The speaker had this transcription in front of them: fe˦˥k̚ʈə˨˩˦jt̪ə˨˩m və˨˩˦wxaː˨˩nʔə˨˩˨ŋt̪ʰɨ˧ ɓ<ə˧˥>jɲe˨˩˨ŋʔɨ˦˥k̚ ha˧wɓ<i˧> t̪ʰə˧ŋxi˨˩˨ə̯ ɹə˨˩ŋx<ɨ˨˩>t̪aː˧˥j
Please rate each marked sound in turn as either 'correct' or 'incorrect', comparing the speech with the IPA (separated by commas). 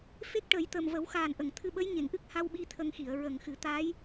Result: correct, correct, incorrect